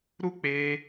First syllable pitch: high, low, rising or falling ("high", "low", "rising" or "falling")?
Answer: high